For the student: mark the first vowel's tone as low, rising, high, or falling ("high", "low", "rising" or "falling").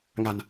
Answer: low